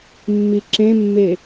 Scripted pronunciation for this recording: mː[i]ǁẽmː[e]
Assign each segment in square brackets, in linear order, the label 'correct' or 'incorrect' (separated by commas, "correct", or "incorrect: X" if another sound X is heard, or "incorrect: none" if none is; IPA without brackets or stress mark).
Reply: correct, correct